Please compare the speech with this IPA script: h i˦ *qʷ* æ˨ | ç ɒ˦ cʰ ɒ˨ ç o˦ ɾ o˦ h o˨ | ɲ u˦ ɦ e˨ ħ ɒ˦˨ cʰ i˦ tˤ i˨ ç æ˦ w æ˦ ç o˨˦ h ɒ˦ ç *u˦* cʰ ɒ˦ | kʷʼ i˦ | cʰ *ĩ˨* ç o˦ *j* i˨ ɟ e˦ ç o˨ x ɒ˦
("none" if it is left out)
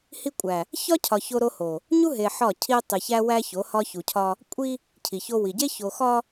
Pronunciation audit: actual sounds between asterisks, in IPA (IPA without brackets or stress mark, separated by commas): kʷʼ, u˨, i˨, w